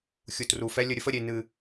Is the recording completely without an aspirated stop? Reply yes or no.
yes